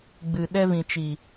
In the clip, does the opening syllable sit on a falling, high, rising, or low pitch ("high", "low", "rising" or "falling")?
low